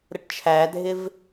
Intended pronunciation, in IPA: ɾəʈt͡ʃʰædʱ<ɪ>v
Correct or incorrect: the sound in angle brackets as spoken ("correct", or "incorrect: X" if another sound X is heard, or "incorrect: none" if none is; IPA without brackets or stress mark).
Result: correct